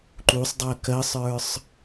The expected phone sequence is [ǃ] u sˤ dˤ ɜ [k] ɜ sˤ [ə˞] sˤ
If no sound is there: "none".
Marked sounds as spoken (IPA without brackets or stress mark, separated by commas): ǃ, k, ə˞